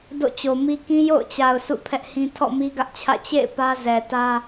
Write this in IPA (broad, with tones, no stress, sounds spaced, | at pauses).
d o̰˦˨ t͡ɕ o˨ m i˦ k ĩ˦ j o̰˦˨ ʊ̯ t͡ɕ a˨ ʊ̯ sʰ ṵ˦˨ pʰ ɛ˦ ʔ h ĩ˦ tʰ ɔ̰˦˨ m i˦ ɡ ä˦ ʔ t͡ɕʰ ä̰˦˨ t͡ɕ ḛ˦˨ ɪ̯ p ä˦ z ɛ˨ t ä˦